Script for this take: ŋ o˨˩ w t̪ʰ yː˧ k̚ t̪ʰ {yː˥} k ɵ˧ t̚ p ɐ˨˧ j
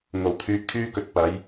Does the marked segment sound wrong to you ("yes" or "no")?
no